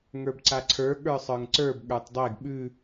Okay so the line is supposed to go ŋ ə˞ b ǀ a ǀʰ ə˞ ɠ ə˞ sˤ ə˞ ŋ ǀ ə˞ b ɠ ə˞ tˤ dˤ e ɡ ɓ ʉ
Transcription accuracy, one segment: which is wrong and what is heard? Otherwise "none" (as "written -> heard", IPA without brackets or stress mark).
none